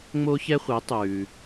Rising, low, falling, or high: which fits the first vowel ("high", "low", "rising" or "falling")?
high